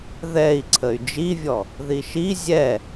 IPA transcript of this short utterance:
ð ɛ i̯ ǀʰ ə y̯ d͡ʒ i vʲ ɔ | ð i ʃ i zʲ ɛ

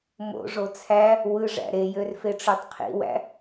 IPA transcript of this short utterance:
m o̰ ʐ o t͡sʰ æ | w ɯ ʐ æ̰ ɾ e j ø r f e ʈ͡ʂ ø tˤ qʰ ḭ w æ̰

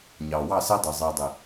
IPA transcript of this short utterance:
ɲ ɑː˨ w ɑ˦˨ s ɛ˦ dˤ i˨ zˤ iː˨ dˤ i˨

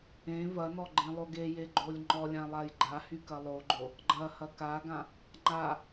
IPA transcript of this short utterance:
ẽ v ɐ n ɔ ɡ͡ǃ ẽ lˠ o ɡ e j e ɡ͡ǃ o lʲ ŋ͡ǃ ɔ lʲ ã lˠ a j ɡ͡ǃ a h y k ɐ lˠ o ɡ͡ǃ o | ɡ͡ǃ ɐ h ɐ k a ɡ ã | ŋ͡ǃ a

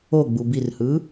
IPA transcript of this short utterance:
o ɡ͡b u b i r h ɯː

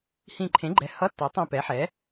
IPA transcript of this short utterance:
h ĩ˧˩ ǃʰ ẽ˩˥ ɡ͡ǃ ɛ˩˧˩ h ʌ˧˥˧ tː ʌ˩˥ tˤ ĩ˧˩ p ɛ˩˥ ħ ɛ˩˥

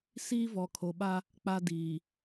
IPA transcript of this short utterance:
s iː˦ v ɔ˨ kʰ o˨ ɓ a˦ | k͡p a˦ d iː˨

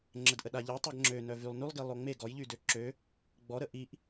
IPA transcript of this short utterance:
ŋ͡ǁ ə d ʔ ə ɗ a ʎ ɛ tˤ ɛ ɡ ŋ͡ǁ ø n œ v y lˠ n y lˠ ɡ i lˠ o ŋ͡m e ɡ ɔ j ʎ y d ø ǁ ø | ɡ͡b ɔ ɾ ə ʔ i ʔ

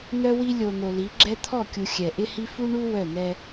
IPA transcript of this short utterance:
n̪ œ˦ w i˦ lʲ o˨ n̪ o˨ l i˨˦ ɡ͡ǁ ɛ˦ t̪ʰ ɔ˦˨ kʲ u˨ xʲ ɛ˨ ʔ ɪ˦ h i˦ f u˦ ɳ u˦ w œ˦˨ n̪ ɛ˦

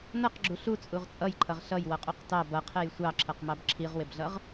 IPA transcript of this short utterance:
n ʌ q ɡ͡ǁ u ɬ u t͡sʼ u ʁ t͡sʼ ʌ j ǃʰ ʌ ʁ ɬ ʌ j w ʌ qʼ u q t ɑ b ʌ qʰ ɛ j sʷ ɑ ǁʰ ʌ q m ɑ b ǁʰ i ʁ w ɪ b ɮ ʌ ʁ

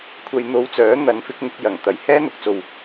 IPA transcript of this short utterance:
kʷʰ ɐ˧ j n̪ o˧ w t͡s œː˨˥ n̪ ɐ˨˥ n f ɪ˨˥ k̚ ŋ ɪ˧ k̚ j ɐ˨˩ ŋ t̪ ɐ˨˥ j h ɛː˥ n̪ ʊ˨ k̚ t͡s o˨ w

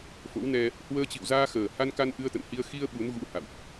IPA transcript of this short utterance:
f o̰˧˥ w n ɛ˧ | h w əː˧ t͡ɕ ḭ˧˨ w z aː˧ x əː˨˩ h a˧ n k a˧ n ʔ ɨ˧ ə̯ t̪ ə̰˧˨ n h i˧ ə̯ x i˧ ə̯ ɓ u˨˦ n ɣ ṵ˧˥ h a̰˧˨ w ʔ

